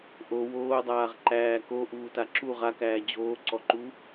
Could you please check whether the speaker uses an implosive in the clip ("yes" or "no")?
no